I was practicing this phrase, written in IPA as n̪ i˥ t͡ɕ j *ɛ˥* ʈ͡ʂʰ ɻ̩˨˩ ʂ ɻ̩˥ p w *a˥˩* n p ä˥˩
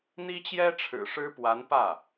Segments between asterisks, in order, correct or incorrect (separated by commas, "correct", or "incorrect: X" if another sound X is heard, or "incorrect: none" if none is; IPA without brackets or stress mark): correct, incorrect: a˧˥